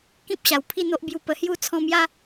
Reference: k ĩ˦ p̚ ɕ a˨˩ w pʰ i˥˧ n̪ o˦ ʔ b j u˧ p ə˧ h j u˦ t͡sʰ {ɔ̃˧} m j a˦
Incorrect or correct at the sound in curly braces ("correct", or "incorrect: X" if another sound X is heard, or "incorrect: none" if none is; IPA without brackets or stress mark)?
correct